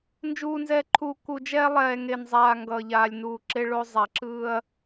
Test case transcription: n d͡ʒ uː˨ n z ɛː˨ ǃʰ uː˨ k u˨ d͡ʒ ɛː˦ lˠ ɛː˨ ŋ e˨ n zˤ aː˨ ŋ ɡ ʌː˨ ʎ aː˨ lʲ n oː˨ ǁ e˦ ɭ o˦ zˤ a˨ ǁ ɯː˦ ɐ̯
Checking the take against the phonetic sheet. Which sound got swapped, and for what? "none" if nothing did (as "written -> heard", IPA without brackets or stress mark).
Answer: oː˨ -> uː˨